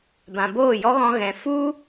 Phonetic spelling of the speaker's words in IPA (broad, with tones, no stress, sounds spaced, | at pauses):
b ã˨ b oː˦˨ j ɔ˦ ɣ ɔ̃˧ ɣ ɛ̃˨ f u˦